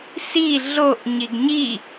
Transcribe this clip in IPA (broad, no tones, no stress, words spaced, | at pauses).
si ɮoʔ ɲiɡɲi